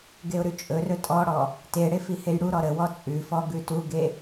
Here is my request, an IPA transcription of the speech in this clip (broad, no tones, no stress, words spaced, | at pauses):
ɡeʊ̯ɾʉt͡ʃʼɵrɵ tʼɔɽɔ | teɽe fihejɽuɾɔ ɾəwɔ t͡sʼʉfɔ ɡʉtuɡe